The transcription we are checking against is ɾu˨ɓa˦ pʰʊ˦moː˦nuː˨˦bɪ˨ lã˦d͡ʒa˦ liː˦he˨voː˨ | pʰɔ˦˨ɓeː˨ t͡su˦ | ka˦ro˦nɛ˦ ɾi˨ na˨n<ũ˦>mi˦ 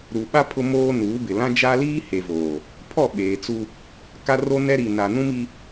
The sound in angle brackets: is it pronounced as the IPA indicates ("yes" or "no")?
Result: yes